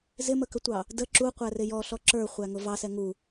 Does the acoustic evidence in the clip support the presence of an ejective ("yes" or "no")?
no